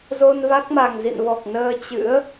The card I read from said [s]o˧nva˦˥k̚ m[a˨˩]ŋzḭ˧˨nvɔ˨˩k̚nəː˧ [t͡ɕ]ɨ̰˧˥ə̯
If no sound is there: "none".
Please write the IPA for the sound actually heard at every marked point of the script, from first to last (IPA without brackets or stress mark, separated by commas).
z, a˨˩, t͡ɕ